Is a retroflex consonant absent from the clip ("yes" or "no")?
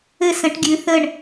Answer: no